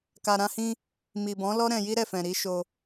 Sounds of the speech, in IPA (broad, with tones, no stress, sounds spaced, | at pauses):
k a˨ ɾ ã˧ h ĩ˧ | m i˨ b ɔ̃˨˦ l ɔ˦ ɾ ɛ̃˧ j i˦ ɾ ɛ˦˨ f ɛ̃˨ ɾ i˨˦ ʃ o˧